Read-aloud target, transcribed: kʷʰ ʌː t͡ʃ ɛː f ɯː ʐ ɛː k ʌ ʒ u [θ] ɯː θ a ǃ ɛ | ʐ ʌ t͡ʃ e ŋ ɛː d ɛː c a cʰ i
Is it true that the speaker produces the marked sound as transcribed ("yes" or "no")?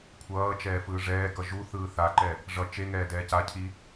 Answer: yes